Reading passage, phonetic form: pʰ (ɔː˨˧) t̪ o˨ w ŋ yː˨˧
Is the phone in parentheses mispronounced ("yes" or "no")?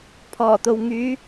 yes